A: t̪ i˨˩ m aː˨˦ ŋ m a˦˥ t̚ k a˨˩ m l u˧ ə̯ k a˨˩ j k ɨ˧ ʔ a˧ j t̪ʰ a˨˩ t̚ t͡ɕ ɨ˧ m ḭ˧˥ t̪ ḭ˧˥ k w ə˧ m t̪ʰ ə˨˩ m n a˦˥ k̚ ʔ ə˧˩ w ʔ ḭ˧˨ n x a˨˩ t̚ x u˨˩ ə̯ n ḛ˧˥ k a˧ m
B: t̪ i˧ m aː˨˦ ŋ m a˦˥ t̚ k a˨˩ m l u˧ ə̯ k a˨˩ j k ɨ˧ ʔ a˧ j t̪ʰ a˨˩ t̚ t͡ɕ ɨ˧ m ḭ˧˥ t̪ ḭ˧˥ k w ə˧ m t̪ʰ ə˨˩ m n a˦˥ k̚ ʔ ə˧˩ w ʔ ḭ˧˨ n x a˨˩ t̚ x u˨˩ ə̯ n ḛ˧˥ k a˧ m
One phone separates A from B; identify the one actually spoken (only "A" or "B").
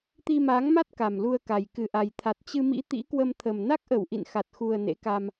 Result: B